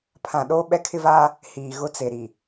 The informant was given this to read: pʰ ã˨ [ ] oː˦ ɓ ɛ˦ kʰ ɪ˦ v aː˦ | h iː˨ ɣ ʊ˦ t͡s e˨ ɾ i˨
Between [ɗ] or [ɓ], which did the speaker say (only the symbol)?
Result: ɗ